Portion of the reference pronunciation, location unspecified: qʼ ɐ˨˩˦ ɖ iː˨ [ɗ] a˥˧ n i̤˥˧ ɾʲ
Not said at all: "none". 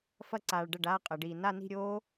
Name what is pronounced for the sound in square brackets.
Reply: n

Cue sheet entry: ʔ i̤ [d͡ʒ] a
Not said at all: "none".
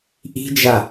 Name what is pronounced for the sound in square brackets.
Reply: d͡ʒ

